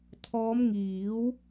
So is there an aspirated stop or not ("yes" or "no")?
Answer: yes